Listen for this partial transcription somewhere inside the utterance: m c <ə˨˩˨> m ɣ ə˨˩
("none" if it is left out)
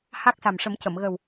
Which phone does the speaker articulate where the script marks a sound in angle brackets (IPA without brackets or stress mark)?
ə˨˩˨